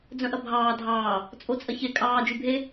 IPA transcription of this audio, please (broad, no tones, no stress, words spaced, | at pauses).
d͡zœ̃ʔɐbʱɑː dʱɑː | t͡sʼot͡sʼɐçe kʼɑː d͡ʒybʱe